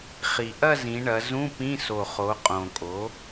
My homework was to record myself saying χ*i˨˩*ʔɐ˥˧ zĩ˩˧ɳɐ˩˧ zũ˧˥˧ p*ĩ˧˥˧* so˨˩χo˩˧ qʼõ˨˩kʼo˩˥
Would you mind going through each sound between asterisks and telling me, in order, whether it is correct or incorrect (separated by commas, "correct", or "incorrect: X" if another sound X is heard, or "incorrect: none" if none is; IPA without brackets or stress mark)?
correct, correct